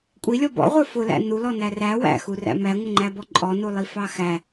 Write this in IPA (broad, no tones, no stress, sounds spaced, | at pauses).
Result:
kʷʼ i lʲ ɔ b ɔ̰ ʁʷ ə˞ f ʊ l æ̰ n u l ɔ n æ r æ w æ̰ x u r æ̰ m æ ŋʷ ə ŋ͡ǃ æ b ɔ ǃʼ ɔ n u lˠ i f ɑ x æ